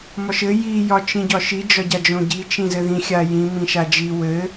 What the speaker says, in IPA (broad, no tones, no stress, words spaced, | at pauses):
mɒʃɘ ji jɒt͡ʃĩɟɒʃi d͡ʒɒɟad͡ʒõɟi t͡ʃĩzɘðĩ xʲajĩ mĩʃad͡ʒi wɘ